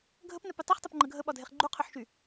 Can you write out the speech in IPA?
ɡʱ ə p n œ p y tˤ u χ tˤ ɘ p ŋ͡ǃ ə ɡʱ ə ɓ ɒ dʱ e χ ɡ͡ǃ u qʰ œ ħ ʃ y

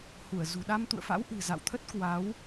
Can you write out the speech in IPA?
h u˧˩ ə̯ z ṳ˨˩ ɗ a˧ m t̪ ṵ˧˨ ə̯ f a̰˧˥ w ʔ ɨ̤˨˩ z a̰˧˨ w t̪ʰ ə˦˥ t̚ k w a˨˦ w

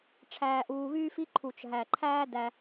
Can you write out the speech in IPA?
ʈ͡ʂʰ æː˨ ʔ uː˨ β yː˦ f i˦ ǃʰ u˩ t͡ʃ ɦ æ˩ ǃʰ æː˦ d æ˨

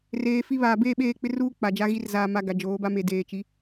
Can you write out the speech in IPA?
r eː˨ f i˦ β aː˨ b eː˦˨ ɓ eː˦˨ k͡p ɪ˦ r uː˦ k͡p a˨ d͡ʒ a˦ ɣ i˦ r z aː˨ m a˨ ɡ a˨ d͡ʒ oː˨˦ b a˦ m e˨ d eː˨ t͡ʃ i˨˦

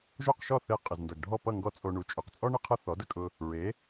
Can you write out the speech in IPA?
ʒ o˥˩ q ʃ ɔ˥˩ θ e˧ qʼ ə˩ z n d ʌ˩ ɡ ɖʱ ɔ˥˩ p ʌ˥˩ ŋ ɡ ɔ˥ t͡sʼ o˧ ɳ u˩˥ t͡ʃʼ ɵ˩ q t͡sʼ ɔ˥ ɳ ɪ˥ qʰ ʌ˥ θ ɔ˩˥ d ə˧ kʼ ʊ˧ | ɹ e˩˥

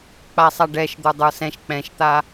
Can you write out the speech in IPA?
k͡p a sˤ a ɖ ɛ ʃ d̪ ə˞ dˤ ə˞ s ɛ̃ ʃ k͡p ɛ̃ ʃ t̪ a

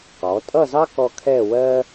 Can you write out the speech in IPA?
q ɔ˩˧ tʼ ʌ˥˧ z ɑ˥ k ɔ˧ kʰ ɛ˥˧ w ɜ˥

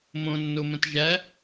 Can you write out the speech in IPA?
m õ nː o m ə̃ t ʒ æ

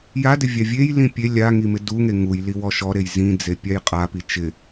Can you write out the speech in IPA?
j a d ɪ vʲ a vʲ e j l ĩ pʲ e lʲ a ŋ i m ɪ d u ŋ e ŋ u j l i w ɔ ʃ ɔ ɾ e j z ĩ d͡z e pʲ a j qʼ a p i t͡ʃ ɪ

